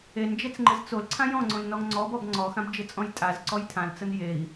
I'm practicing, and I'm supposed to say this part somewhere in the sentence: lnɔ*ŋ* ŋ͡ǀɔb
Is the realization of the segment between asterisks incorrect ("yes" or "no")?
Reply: no